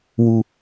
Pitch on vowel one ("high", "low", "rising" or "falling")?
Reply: high